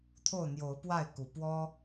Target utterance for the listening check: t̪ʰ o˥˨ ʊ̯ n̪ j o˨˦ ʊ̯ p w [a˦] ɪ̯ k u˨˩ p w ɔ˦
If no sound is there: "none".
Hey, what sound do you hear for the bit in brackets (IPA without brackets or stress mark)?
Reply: a˥˨